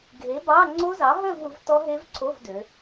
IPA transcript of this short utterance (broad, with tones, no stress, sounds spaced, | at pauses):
ɡʱ e˨˥ b ɑ˧˥˧ ŋ͡ǀ o˦˥ z ɑ˨˥ ɦ œ˥˧ v u˩˧ v t ɔ˦˥ ɦ e˦˥ v ǀʰ o˧˥˧ v d ø˩˧